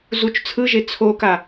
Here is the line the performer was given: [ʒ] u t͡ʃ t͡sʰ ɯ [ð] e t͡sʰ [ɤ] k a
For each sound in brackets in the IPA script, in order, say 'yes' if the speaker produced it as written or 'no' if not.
no, no, no

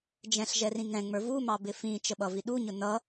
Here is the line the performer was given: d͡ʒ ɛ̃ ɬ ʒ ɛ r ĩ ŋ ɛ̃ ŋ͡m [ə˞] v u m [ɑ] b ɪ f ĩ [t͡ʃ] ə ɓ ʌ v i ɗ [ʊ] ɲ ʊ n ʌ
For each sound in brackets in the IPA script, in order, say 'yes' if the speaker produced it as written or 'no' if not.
yes, yes, yes, no

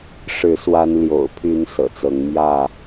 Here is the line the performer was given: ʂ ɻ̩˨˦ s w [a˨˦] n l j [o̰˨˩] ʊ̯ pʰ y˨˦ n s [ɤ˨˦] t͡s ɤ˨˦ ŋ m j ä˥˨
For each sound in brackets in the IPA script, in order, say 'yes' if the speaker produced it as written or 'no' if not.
no, yes, no

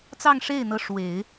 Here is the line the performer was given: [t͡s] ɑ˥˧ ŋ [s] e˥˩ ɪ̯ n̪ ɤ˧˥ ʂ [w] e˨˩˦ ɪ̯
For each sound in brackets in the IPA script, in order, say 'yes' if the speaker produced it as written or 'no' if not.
yes, no, yes

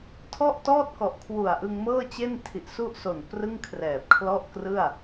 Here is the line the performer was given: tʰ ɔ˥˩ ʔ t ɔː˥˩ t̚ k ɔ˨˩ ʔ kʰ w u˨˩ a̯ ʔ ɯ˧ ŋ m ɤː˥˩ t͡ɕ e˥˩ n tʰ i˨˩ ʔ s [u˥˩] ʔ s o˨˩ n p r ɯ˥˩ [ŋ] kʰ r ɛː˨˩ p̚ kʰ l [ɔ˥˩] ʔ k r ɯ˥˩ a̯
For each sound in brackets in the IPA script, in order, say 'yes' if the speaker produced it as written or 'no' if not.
yes, yes, yes

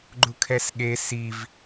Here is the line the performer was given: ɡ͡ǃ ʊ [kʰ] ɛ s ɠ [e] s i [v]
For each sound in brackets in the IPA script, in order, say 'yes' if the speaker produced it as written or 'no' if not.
yes, yes, yes

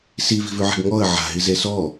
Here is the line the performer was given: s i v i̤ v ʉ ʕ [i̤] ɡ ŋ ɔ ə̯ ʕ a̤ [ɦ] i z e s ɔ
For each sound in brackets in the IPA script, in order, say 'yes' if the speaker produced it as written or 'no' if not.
no, yes

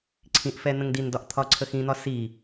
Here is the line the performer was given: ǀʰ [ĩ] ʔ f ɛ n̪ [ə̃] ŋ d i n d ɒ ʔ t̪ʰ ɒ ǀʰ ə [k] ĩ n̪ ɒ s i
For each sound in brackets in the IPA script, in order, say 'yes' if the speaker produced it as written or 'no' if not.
yes, yes, no

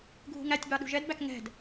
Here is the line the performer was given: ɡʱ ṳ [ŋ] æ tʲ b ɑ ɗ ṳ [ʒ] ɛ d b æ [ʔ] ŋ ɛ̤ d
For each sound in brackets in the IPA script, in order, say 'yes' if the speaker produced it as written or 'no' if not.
yes, yes, no

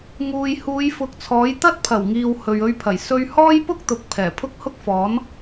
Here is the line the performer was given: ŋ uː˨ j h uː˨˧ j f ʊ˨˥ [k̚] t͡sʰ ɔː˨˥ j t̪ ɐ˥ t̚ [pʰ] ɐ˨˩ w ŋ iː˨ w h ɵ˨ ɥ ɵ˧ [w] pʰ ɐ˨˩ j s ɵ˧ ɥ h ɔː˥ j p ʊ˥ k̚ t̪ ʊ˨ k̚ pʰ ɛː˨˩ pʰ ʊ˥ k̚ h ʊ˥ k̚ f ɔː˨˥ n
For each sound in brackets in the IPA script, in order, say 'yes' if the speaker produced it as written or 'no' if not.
yes, yes, no

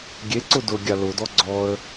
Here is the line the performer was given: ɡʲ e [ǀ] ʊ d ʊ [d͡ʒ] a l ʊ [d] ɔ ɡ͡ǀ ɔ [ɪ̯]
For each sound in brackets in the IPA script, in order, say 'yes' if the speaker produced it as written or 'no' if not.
yes, no, yes, no

